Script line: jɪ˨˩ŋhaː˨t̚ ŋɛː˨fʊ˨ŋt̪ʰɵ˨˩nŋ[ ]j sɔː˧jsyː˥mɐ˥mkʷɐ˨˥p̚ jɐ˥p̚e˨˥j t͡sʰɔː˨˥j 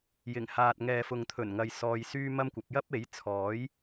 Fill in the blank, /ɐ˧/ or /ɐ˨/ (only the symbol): ɐ˨